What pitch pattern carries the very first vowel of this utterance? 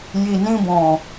low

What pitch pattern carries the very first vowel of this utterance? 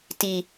low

